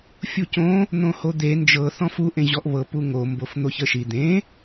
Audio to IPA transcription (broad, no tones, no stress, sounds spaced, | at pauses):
fʲ u c õ | n̪ õ h o d̪ e n d͡ʒ ɤ θ ɔ̃ f u ʔ ẽ ʑ ɔ ʔ β ɤ p u ŋ o m b o f n̪ o ç ə ʃ i d̪ ẽ